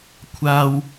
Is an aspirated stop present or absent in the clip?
present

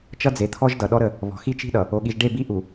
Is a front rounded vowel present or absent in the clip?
absent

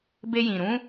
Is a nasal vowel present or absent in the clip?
present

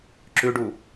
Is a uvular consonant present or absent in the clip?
absent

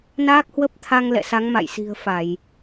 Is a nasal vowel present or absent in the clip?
absent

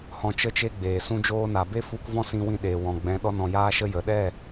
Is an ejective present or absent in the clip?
absent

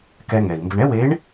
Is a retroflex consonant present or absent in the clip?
present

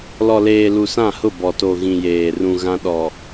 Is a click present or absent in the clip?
absent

